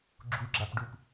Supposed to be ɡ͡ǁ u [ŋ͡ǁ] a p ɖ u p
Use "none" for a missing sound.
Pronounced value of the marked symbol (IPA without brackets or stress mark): ɡ͡ǁ